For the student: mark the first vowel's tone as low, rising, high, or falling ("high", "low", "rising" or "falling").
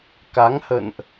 rising